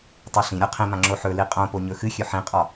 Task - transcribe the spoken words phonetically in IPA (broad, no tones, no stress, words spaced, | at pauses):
tˤoɬĩɾʲɒ qʰĩmã ŋ͡ǁoħɵli qʼõpo ɲɵxɨxʲɵ ħĩqʼɒ